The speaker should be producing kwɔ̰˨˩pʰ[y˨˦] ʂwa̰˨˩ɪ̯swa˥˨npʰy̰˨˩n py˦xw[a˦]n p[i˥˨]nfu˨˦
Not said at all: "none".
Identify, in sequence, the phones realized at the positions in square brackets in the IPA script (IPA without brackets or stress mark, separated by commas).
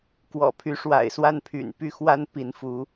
y˨˦, a˦, i˨˦